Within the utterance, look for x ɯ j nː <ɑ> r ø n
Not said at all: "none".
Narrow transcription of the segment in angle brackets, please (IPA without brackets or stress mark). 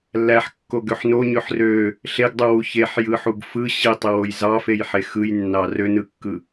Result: ɑ